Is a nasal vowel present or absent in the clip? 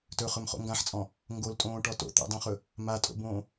present